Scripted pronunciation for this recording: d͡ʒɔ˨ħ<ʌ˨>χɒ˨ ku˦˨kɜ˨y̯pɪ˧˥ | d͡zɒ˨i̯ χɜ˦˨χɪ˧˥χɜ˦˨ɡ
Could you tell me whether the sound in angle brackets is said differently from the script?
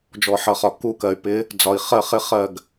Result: no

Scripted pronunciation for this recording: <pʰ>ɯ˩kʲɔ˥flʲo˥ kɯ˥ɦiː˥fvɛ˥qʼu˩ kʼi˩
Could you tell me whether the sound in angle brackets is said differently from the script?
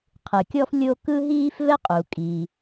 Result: yes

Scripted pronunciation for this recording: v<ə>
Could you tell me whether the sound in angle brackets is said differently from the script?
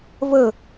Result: no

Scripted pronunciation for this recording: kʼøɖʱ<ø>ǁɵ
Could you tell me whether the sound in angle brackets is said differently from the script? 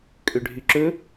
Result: yes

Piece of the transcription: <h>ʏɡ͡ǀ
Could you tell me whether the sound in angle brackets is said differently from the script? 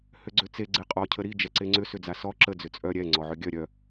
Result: no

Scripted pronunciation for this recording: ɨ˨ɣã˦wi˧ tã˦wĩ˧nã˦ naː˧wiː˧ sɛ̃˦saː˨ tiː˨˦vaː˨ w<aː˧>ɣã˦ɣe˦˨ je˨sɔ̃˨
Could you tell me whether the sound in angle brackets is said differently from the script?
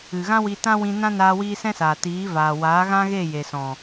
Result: yes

